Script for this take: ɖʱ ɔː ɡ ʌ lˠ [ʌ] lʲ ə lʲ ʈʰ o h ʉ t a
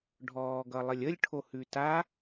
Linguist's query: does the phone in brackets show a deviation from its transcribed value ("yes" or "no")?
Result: yes